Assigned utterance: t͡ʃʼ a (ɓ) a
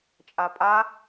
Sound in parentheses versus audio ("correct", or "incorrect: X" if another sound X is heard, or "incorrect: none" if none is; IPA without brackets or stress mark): incorrect: pʼ